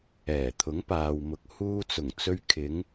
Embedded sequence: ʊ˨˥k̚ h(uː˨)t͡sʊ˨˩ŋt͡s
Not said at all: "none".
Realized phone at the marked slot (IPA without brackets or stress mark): uː˧